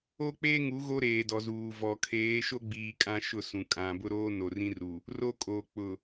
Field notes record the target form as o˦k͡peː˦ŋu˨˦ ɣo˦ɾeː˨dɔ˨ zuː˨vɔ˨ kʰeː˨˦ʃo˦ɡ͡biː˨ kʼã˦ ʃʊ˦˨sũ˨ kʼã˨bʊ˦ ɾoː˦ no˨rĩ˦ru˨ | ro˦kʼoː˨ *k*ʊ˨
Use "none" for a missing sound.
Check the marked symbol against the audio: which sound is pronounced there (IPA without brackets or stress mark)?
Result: k͡p